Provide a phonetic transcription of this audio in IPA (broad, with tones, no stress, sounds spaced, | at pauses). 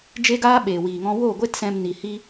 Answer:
d͡ʒ e˦ ɡ aː˦ ɓ eː˨ w iː˨ ŋ ɔ̃˧ w oː˦˨ ɡʷ e˦ t s ɛ̃˧ m n i˨ h i˦